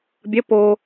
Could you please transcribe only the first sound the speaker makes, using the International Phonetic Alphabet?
bʲ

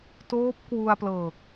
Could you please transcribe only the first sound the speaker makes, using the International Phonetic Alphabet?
t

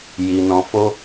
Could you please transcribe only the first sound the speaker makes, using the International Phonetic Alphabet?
j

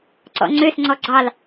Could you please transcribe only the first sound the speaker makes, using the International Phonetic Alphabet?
ǀ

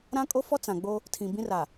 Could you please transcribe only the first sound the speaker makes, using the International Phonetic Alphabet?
ɾ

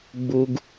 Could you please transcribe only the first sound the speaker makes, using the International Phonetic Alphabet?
ɡ͡b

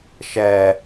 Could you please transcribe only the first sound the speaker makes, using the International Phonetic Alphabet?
ʃ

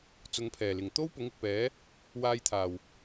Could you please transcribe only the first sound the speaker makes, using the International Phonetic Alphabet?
t͡s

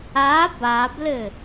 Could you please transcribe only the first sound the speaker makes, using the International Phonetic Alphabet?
a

